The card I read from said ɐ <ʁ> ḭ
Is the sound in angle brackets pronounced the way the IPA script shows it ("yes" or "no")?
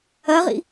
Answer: yes